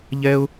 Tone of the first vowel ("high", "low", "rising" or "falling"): high